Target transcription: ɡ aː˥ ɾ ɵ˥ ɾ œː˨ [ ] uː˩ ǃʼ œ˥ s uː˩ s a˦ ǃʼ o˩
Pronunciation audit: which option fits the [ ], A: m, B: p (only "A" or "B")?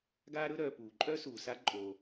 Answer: B